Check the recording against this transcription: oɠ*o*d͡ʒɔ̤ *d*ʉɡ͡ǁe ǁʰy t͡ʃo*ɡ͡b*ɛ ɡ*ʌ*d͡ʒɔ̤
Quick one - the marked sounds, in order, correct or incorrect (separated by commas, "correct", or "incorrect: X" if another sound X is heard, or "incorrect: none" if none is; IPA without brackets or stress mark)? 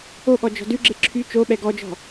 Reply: incorrect: ɔ, correct, incorrect: ɓ, incorrect: ɔ